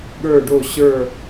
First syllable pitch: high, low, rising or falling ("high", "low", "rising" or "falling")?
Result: falling